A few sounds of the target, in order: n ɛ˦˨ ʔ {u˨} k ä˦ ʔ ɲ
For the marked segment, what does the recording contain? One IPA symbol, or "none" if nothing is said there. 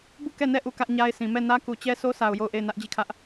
u˦˨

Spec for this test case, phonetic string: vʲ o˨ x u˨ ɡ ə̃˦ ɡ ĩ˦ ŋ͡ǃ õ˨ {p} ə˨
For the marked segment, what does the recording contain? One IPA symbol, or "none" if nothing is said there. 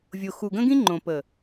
p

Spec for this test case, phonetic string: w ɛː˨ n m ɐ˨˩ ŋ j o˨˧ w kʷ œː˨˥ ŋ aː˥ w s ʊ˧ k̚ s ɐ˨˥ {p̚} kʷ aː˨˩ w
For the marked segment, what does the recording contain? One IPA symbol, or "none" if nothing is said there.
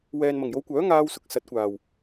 t̚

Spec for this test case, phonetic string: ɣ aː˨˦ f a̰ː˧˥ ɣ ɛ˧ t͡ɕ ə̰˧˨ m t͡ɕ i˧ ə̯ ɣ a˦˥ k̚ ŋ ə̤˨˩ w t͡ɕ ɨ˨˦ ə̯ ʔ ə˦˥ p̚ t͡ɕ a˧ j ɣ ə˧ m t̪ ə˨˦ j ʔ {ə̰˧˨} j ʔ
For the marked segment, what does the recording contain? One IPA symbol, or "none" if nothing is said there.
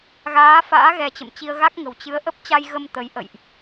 ə̰˧˨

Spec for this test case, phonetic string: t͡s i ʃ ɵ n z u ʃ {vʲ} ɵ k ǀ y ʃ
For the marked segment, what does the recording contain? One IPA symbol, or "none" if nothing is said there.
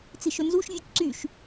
vʲ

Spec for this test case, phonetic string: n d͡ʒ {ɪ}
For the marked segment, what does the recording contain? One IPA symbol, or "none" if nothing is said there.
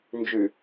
y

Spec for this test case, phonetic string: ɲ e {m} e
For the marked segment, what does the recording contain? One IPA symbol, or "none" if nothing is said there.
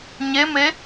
m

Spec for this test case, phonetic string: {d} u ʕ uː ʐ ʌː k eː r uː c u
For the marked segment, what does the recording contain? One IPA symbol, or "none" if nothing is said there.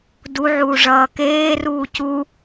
d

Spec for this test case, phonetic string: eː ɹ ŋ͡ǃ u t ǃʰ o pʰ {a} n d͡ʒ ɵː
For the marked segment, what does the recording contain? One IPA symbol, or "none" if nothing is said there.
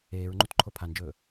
a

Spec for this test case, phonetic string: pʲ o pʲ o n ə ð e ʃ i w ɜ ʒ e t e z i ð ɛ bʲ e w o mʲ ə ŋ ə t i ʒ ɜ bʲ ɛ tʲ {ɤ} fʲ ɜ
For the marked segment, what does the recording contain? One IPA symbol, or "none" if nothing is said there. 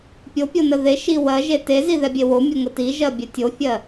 o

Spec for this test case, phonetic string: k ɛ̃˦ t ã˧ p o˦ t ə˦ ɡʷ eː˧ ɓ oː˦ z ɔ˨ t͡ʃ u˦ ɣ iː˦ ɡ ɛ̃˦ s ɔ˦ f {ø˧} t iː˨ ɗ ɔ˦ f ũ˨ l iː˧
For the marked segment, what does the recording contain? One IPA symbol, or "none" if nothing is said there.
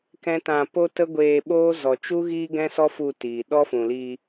u˧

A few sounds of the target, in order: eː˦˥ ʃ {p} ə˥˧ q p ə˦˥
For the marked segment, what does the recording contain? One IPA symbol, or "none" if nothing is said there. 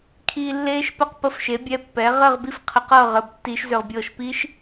p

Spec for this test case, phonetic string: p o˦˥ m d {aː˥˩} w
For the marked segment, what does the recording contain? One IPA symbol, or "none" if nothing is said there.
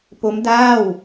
aː˥˩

